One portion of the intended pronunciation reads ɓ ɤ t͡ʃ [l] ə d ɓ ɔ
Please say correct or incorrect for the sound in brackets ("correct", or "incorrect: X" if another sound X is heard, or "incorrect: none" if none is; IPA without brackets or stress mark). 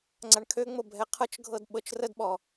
incorrect: r